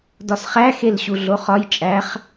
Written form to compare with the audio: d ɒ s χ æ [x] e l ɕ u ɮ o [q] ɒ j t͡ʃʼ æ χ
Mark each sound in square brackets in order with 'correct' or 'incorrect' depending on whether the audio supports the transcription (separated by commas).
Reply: correct, incorrect